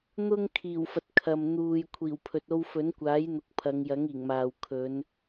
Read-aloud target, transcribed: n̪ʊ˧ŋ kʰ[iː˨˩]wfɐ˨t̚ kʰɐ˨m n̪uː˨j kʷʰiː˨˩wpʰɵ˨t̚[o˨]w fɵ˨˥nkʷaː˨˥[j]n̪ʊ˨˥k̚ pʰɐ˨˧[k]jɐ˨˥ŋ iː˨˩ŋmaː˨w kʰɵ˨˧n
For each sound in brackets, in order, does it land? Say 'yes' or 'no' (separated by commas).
yes, no, yes, no